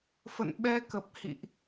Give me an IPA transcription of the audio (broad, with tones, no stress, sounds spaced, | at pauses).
f ə̰˧˨ n ɓ ɛ˧ k ə˨˩ p̚ h ḭ˧˨ ʔ